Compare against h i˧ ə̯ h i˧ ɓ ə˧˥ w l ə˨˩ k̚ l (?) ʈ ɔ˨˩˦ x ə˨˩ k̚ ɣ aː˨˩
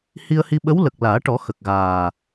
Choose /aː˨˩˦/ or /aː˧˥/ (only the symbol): aː˨˩˦